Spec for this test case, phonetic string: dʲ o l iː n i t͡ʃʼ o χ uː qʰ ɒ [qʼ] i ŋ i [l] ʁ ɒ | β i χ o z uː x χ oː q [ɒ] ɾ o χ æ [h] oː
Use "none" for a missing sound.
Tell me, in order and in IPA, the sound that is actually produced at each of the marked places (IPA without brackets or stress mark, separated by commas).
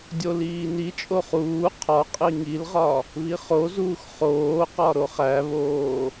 qʼ, l, ɒ, β